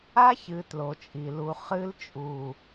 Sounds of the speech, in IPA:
a˦çɨ˨ tlo˨t͡ʃʼi˨lu˨ χɨ˦lt͡ʃʼu˨

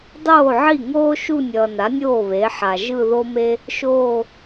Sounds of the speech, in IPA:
dˤoː˥˩ʕi˥˩ ŋoː˥ʃu˥˧ nʲʌː˨na˩˥nʲoː˥˩ βe˩˥ħa˨ ʒɯ˥˧ðo˥me˥ | ʃoː˥˧

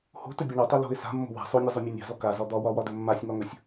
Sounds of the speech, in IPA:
ho̤tɵbʲa ɳotˤø lo̤ɪ̯ sa̤mːo̤ wa̤ sˤonʲɔzˤømʲɔ nʲa̤zɔ kazɒ d̪ɒwɒwɒdɵ mːasʲŋɒŋɵsʲ

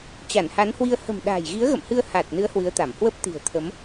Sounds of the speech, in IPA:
t͡ɕa˧˩nha˨˦nhwi˧ə̯ hə̤˨˩mɗa̤ː˨˩jɣi˨˦ə̯ɣə̰˧˨m hɨ˧ə̯ haː˨˩t̚nɨ˨˦ə̯ hwɨ˨˦ə̯t̪a˧˩m hwə˦˥p̚t̪i̤˨˩ə̯ t̪ʰə˨˦m

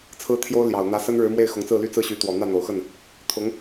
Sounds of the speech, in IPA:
t͡sʰɹ̩˥t̪ʰjo˥ʊ̯ ljɑ˨˩ʊ̯n̪ä˧˥ sə˥nɻɻ̩˧˥ mwe˥˩ɪ̯xʊ˧˥ŋt͡sɹ̩˥˩ly˥ t͡sɹ̩˥˩ɕy˧˥t̪wɔ˨˩ n̪ä˥˩n̪o˨˩ʊ̯xə˥˩n | t̪ʰʊ˧˥ŋ

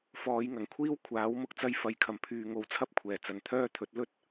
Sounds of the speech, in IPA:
fɔː˨˧jŋɐ˨˩ŋkʷʰiː˥w kʷʰaː˨˥w mʊ˧k̚t͡sɐ˧j fɐ˨˧j kʰɐ˨˩mpʰyː˨ ŋo˨˧wt͡sʰɐ˥p̚kʷʰɛː˨˩ t͡sɐ˨nt̪ʰœː˥t̪ʰɵ˨˥t̚ lɵ˥t̚

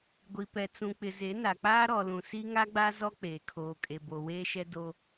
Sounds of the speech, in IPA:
ɡʷi˨pɛ˨t͡sũ˨ k͡pɪ˨ ze˨˦na˨k͡paː˦ ɾɔ˨lũ˨ si˦ŋa˦ɡ͡ba˦ zɔ˦k͡peː˨ kʰoː˨kʼe˨bo˨ weː˦ʃɛ˦do˦

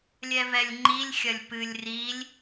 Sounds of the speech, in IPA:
lʲɛvɛlʲŋ͡ǃilʲxʲɐlʲ pɨlʲ rilʲ

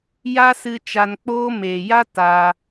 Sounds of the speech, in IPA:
ja˦sɨ˧ t͡ʃa˧nk͡poː˦ meː˨ja˦ taː˧

